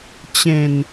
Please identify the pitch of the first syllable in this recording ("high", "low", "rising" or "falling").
low